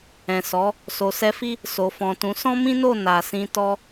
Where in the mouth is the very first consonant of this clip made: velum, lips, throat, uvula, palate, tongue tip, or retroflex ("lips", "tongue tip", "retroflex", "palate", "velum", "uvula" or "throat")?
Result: tongue tip